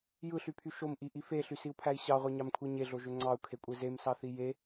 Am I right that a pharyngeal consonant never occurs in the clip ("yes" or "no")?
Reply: yes